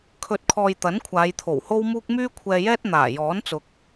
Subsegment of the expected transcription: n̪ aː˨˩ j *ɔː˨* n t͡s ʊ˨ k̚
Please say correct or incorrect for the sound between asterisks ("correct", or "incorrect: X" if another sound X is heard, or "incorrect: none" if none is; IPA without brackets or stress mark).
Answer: incorrect: ɔː˨˥